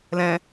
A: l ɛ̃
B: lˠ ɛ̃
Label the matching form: A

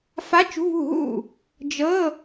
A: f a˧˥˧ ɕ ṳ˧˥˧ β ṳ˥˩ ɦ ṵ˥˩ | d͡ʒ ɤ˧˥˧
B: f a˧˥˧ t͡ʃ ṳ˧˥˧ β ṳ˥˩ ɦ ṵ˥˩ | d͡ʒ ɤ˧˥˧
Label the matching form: B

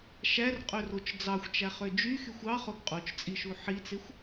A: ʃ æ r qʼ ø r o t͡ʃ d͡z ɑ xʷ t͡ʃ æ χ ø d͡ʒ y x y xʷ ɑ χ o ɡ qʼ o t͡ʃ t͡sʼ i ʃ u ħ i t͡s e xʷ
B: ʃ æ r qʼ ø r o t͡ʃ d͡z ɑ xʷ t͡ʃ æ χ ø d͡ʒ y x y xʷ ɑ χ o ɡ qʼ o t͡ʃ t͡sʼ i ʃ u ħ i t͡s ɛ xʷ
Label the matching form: A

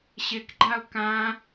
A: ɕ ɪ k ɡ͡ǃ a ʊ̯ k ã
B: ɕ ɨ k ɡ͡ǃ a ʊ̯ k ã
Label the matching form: A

